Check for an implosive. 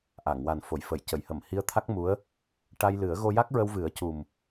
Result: absent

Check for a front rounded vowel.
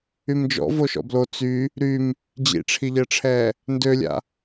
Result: present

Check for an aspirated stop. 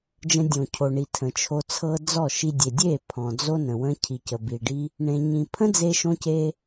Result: present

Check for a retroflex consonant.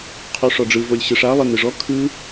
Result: present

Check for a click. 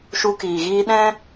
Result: absent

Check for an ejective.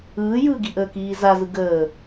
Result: absent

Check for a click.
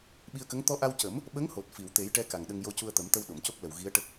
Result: absent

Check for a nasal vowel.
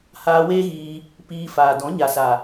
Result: present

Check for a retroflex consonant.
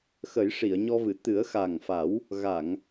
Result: present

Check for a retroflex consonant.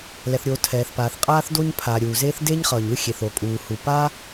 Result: absent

